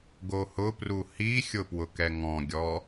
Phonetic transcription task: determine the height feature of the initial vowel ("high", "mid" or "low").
mid